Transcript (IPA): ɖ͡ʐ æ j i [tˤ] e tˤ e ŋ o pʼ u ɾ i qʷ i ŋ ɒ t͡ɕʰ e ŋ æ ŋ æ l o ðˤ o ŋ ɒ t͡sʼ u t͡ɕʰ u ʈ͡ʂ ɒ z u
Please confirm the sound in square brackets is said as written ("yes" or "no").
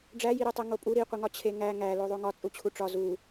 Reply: no